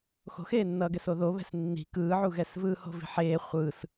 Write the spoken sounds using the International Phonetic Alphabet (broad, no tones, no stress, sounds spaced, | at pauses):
x o̤ x eː nː ʌː ɡ ɛ s o ð o β ɛ̤ s nː i̤ k ɯː ʕ u ɣ ɛ s v ɯː h o̤ v i̤ ħ eː χʷ ɯ s